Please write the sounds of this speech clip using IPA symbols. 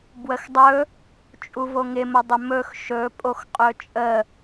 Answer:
bwəxdˤɵ | t͡ʃʼuvoŋɪmə dˤɪmɵx ʃɵ pʼoxqʼɵt͡ʃʼə

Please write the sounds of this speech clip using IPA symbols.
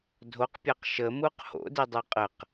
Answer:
dʱoqpʲaq ʃəmuq ho̰didˤo qʼəq

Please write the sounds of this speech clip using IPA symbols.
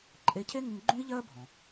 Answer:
ǃʼe˧ cʰe˥ŋɪ˧ŋ ɡ͡ǃũ˥i̯ʎɜ˥bʱɔ̃˩

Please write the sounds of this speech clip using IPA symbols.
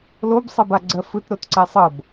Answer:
lobsˤɛbaɡ͡ǀɜ fɯtɾotǀɛ sˤɤb

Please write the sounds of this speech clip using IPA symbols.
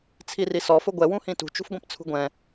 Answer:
t͡sʰirisɔ fʊɡʷɛ wũhĩtṳ t͡ʃṳfɡʷĩpt͡sʰṳɡʷɛ̃

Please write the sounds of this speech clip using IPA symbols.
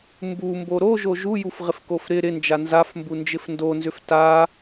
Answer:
mbumbo ɾoʒo ʒujufʁɪfkof ɾɪ ɾɪnd͡ʒa nzafmbund͡ʒɪf ndonzʏf ta

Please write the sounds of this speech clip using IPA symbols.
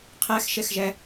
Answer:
qʰæxʃɛxʒæ

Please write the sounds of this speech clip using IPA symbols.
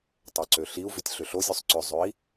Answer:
tˤøǀøɬiu̯vʏtʲ ɬʏɬozʲøsˤ ǀʏzˤøi̯

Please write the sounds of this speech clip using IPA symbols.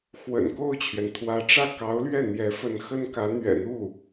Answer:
xwə̰˨˩nko˥˩ʊ̯t͡ɕʰɥɛ˩n t̪ʰwä˧˥ʈ͡ʂä˥˩ kɑ˧˥ʊ̯lɥɛ˥˩ n̪jɛ˧˥fə˧˥nxə˥nkä˧˥ n̪ɥɛ̰˨˩n̪u˥˩

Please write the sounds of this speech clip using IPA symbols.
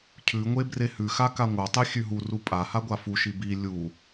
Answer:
cʰʉŋʷe brehʉxa kaŋʷatˤe xʲʉɦuru pʼa haɡʷafuʃi bi lʲu

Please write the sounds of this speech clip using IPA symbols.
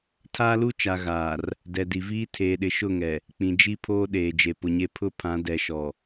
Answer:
tʰaː˦lu˦t͡ʃa˨ ɣaː˨r | dɛ˨di˨viː˦ tʰeː˨ɗɪ˨ʃʊ˦˨ŋɛ˨ | k͡pĩ˨d͡ʒi˦pʰoː˦ɗeː˨ d͡ʒe˨pʊ˨ɲe˦ pʰʊ˦pʰã˨˦ dɛ˨ʃɔ˨

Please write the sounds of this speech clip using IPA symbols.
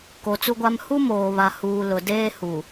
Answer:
ko˨t͡su˦ɡʷa˦m hu˦moː˨βa˨ huː˨lʊ˨deː˦ hu˨

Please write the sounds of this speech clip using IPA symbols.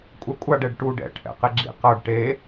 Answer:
kʷʼɛkʷʼaɖ ɛɖʈuɖ ɛ̰ ʈʰɛ̰qeɡ͡ǁḭ qʌɖ ʈe

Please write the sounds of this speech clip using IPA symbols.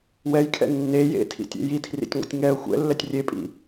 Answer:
wɛjkʰɛ̰ nːe jḛtʰḭtʲḛ jitʰrḭtʲŋʷɛ̰tʲ ŋɛə̯ xʷɛ̰lːɛtʲ rʲepʼḭ

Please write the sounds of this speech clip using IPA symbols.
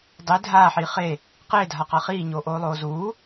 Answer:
dˤe dʱaːħiː χe | qeːdʱaqa χiːɲoːʔoːlˠoː zuː

